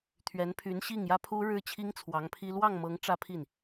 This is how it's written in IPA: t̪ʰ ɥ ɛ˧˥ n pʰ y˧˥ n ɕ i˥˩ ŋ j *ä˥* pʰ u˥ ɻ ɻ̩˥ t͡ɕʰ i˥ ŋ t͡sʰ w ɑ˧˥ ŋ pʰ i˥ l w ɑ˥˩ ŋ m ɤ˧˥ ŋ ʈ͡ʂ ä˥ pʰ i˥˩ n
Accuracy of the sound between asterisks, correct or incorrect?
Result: correct